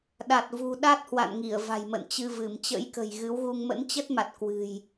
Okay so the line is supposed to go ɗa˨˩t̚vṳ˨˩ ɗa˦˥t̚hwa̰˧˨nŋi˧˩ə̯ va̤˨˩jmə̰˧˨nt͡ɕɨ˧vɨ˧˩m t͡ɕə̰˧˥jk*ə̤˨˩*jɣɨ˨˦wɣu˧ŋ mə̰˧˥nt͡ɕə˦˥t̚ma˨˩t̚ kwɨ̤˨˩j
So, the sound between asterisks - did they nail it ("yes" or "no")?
yes